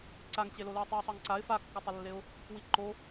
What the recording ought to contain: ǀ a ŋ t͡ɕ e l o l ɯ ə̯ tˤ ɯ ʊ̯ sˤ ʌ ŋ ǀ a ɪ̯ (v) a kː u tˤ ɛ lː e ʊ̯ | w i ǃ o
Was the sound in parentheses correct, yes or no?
no